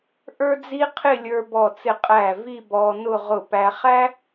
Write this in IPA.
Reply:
ʔ ə˞˥ d͡z i˥ qʰ ɪ˥˧ lʲ ə˞˧ b ɔ˧˩ t͡s ɪ˧˩ qʼ æ˧˩ v i˥˧ b ɔː˧ n ʊ˥˧ ʁ ʊ˧˩ p æ˧ χ æ˥

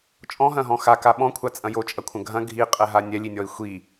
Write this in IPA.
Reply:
t͡ʃʼ ɔ̃ ɦ ɐ̃ ɦ ɔ̃ x a k a ɓ ɔ̃ kʷʰ a t͡sʼ ɐ̃ j o t͡ʃʼ ɐ kʷʰ ɐ̃ ɡʱ ɐ̃ ɡʱ i qʼ ɛ ɦ a nʲ ɛ lʲ i nʲ ɔ i̯ xʷ i

